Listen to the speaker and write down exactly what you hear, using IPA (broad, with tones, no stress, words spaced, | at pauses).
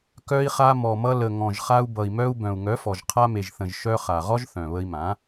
kœ˧i̯χa˧mɔ˨mʌ˧ lə˨ŋɔ̃˨ʒχa˧u̯ bʌ˨i̯mœ˧u̯ bœ̃˨u̯ŋœ˨˦fɔ˨ʒ qʰa˧me˨ʒθə̃˨ʒ ʃœ˧χa˨ ʁɔ˦ʒθœ̃˨βə˧i̯mã˨˦